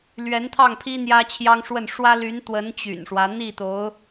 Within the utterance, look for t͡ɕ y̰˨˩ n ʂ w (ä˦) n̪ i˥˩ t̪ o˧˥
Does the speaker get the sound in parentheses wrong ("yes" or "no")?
no